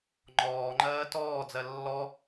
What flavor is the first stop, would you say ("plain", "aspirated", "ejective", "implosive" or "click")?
click